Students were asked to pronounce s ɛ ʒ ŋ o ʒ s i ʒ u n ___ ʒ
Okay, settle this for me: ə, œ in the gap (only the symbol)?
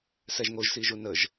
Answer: ə